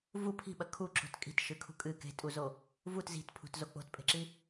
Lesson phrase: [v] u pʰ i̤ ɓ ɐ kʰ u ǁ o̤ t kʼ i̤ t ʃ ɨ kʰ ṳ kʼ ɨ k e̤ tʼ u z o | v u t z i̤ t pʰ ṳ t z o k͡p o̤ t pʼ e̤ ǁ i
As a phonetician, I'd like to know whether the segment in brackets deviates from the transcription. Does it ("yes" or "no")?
no